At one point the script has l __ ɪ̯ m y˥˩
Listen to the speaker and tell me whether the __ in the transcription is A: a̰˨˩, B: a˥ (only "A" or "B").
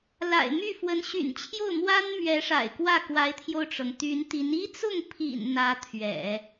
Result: A